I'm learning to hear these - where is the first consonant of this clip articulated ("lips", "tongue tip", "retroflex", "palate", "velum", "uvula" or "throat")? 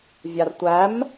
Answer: lips